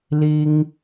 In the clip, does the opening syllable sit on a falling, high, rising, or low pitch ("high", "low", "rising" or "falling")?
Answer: high